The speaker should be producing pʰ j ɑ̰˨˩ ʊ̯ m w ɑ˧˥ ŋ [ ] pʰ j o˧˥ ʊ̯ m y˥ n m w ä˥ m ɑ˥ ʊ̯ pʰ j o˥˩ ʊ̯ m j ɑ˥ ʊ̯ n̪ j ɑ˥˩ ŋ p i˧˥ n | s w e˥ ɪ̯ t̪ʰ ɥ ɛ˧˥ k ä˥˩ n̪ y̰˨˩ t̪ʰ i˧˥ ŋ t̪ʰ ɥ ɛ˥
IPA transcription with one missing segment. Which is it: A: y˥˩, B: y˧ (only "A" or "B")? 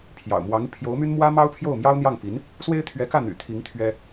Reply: B